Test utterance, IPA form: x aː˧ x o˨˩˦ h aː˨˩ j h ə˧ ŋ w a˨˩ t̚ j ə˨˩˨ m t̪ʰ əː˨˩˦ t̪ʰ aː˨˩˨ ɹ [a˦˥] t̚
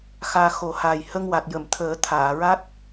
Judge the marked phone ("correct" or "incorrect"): correct